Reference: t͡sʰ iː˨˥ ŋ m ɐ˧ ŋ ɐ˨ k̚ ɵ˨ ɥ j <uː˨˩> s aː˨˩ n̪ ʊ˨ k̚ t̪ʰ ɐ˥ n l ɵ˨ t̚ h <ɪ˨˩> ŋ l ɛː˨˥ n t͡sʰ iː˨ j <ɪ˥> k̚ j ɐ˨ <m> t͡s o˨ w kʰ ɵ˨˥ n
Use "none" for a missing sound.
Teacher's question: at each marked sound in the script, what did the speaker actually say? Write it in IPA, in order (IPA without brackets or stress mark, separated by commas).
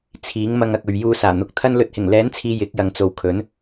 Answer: uː˧, ɪ˨˩, ɪ˨˥, ŋ